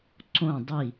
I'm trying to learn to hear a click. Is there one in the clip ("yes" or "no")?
yes